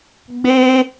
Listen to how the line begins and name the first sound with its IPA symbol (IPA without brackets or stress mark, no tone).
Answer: ɡ͡b